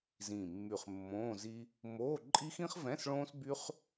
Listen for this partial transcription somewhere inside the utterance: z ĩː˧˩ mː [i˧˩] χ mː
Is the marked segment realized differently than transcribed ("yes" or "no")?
yes